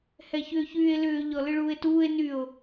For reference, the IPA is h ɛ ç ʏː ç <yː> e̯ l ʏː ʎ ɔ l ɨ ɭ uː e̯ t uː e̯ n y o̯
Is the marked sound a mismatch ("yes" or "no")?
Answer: no